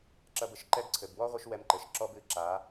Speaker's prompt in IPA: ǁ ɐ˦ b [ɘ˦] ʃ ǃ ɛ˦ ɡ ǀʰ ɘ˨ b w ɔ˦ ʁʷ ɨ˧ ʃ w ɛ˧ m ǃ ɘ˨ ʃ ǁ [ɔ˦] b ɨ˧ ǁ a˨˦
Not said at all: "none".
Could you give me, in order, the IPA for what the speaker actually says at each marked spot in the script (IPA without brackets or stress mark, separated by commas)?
ɘ˧, ɔ˦